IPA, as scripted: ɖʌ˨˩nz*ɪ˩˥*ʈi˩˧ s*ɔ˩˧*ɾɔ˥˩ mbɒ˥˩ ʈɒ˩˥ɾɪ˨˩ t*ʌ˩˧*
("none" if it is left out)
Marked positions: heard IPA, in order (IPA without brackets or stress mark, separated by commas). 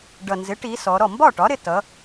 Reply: ɪ˩˥, ɔ˩˧, ʌ˩˧